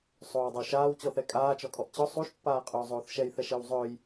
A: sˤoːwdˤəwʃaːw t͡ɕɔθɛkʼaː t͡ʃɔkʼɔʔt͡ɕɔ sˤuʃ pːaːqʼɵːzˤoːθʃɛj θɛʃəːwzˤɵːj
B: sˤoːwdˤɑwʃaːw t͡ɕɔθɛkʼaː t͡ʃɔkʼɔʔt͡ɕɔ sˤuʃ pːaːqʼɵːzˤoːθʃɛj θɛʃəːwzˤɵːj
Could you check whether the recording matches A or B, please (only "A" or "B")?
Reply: A